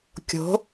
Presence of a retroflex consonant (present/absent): absent